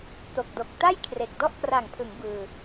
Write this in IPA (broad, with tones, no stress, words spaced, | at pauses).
to˨˩k̚do˨˩k̚ ta˥˩j kʰre˨˩k̚ dɔ˥˩ʔkra˨˩ŋpʰɯ˩˦ŋ bɯː˧